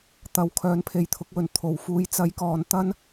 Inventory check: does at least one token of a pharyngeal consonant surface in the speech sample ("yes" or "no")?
no